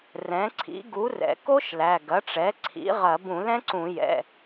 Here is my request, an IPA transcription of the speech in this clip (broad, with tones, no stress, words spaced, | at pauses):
rɛ̃˩˥ǀʰḭ˩˥ ɡu˩˥rɛ̰˩ ko˦˥ʃ læ˩˧˩ ɡɐ˩˥ʈ͡ʂɛ˩˥ ǀʰḭ˩˥ʁɐ˧˩˧b ũ˧˩˧lɛ̃˦˥ǀũ˧˩˧jɛ̰˩˧˩